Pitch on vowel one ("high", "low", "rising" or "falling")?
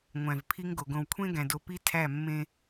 low